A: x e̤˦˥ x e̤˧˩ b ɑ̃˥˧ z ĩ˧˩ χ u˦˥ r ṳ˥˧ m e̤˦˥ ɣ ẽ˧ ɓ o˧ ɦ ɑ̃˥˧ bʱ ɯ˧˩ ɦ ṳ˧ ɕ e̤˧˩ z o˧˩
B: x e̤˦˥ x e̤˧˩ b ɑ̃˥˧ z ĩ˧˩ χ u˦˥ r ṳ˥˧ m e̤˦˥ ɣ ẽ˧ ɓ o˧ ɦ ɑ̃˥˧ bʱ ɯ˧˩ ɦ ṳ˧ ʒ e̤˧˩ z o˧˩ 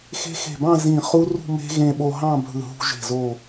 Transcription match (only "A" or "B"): B